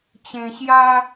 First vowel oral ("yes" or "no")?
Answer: no